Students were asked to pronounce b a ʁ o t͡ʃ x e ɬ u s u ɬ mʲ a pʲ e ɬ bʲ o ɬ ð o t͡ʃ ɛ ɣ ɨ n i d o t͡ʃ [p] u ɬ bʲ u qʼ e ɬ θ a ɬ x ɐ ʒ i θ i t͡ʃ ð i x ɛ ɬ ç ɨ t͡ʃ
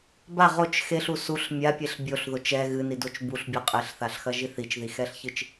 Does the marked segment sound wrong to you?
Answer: yes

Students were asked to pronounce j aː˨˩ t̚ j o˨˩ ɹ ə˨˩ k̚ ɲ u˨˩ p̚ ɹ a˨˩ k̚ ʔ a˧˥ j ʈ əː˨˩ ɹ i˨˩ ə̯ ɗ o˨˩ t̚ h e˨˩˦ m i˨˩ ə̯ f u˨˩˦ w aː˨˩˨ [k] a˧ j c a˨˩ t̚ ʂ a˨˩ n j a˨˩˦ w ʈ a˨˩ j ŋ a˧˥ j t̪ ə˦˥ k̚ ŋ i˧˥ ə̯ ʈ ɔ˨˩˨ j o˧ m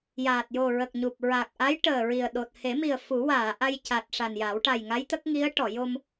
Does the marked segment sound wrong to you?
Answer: yes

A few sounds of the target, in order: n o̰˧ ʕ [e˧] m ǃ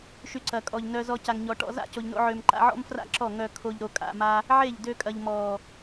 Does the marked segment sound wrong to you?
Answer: yes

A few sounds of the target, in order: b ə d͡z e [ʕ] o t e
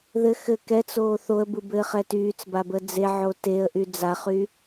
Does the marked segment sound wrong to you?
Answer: no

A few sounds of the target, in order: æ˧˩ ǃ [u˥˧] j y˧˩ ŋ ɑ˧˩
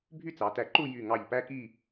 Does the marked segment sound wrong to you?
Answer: no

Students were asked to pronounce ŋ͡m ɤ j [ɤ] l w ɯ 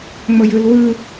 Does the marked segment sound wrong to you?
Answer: yes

